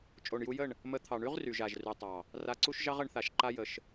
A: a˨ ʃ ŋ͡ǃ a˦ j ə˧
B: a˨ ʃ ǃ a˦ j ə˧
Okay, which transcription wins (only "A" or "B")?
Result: B